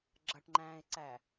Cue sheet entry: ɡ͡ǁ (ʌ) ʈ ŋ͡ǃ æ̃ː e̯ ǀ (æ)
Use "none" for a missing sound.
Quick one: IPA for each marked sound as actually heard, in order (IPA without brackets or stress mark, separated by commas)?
ʌ, æ